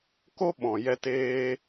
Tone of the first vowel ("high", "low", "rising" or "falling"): high